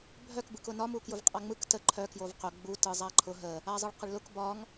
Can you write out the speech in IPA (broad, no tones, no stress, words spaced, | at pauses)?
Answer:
bʱœk bɯkʊnɒ mukjʊvqʼaŋ͡mɯk tə ǃʰœ kjovqʊ ɡ͡bu tɯzˤaǃʰʊ ɦə | azˤɯɭqəɭlʊk bɒŋ